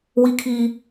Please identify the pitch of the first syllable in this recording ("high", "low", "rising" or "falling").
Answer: high